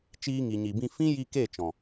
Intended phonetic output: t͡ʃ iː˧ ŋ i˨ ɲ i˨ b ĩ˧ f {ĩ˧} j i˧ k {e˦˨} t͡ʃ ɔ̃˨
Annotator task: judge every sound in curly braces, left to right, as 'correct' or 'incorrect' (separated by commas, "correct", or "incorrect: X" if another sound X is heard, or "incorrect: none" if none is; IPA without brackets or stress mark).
incorrect: ĩ˦, correct